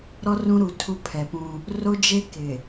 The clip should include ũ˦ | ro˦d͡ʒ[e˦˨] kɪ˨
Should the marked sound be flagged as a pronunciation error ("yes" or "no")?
yes